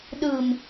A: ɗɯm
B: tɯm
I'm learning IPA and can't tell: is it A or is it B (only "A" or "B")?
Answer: A